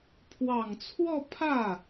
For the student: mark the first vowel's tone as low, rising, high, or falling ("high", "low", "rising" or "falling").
low